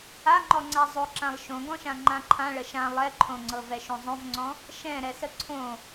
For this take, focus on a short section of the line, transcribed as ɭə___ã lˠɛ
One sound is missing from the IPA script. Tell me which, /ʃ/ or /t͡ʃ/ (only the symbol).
ʃ